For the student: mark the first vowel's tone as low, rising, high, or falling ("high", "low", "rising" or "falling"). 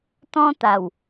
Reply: high